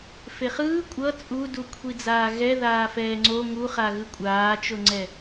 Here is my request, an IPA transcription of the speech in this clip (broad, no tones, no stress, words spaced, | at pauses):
feχɯː kʷʼʌ t͡sʼudukʷʰid͡zaː ɣɛ ðaːfɛːŋ͡ǀo ŋuχa ɣɯkʷʼaːt͡ʃoŋ͡ǀɛ